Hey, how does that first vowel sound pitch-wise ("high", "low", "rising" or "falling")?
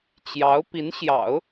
rising